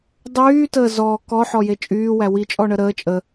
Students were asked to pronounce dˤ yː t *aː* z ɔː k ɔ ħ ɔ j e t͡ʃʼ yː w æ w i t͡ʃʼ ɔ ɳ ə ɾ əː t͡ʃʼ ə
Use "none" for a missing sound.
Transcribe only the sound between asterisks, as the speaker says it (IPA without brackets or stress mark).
əː